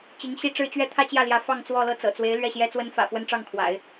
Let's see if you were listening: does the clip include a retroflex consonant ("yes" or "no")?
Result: yes